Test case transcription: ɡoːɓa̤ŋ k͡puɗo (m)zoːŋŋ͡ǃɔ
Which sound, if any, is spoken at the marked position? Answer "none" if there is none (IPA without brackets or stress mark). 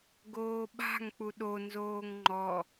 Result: n